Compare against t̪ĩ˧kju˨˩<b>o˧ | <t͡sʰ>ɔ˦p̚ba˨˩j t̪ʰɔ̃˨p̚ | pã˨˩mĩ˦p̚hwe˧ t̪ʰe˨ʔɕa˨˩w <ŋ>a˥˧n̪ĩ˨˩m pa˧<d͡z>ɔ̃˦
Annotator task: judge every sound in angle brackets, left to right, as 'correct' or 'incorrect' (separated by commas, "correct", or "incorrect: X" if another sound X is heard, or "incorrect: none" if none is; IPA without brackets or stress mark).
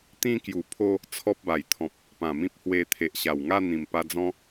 incorrect: pʰ, correct, correct, correct